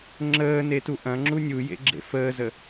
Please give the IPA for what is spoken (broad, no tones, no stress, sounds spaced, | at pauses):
ŋ͡ǁ əː n e t u ʔ ɐ̃ ŋ͡ǁ u nʲ u j ḛ ɡ͡ǁ ḛ f əː z ə